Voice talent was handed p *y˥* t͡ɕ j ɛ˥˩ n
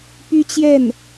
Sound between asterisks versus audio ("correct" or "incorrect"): correct